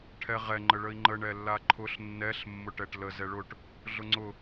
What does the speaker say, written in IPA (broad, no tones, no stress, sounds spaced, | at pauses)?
ʈʰ ɛ ʁ ɛ ŋ͡ǃ ə ɭ ə i̯ ŋ͡ǃ ə ɳ ɛ lː a ǃʰ ʊ ɬ nː ɛ ɬ mː ʊ ʈ ɛ ʈ l ə z ɛ ɭ ʊ ʈ | ɮ ʊ ŋ͡ǀ ʊ